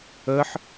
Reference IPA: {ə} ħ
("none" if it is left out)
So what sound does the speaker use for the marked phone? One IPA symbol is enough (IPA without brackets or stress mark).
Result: ə